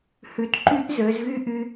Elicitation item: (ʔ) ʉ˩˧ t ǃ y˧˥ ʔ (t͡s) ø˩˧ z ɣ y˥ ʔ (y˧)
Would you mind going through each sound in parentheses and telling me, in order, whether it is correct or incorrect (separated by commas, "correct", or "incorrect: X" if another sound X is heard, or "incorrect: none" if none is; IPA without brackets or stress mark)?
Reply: incorrect: h, incorrect: z, correct